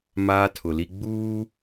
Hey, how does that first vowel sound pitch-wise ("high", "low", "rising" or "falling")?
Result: high